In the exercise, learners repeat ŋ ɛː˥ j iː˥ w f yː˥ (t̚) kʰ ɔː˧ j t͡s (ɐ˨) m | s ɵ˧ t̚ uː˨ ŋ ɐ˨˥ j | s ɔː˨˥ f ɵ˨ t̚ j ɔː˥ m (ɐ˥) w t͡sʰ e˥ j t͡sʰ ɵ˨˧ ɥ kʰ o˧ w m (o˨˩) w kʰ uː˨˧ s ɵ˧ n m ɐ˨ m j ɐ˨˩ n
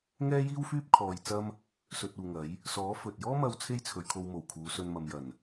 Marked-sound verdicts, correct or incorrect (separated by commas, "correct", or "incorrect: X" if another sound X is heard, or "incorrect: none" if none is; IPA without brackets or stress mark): incorrect: p̚, incorrect: ɐ˥, incorrect: ɐ˧, correct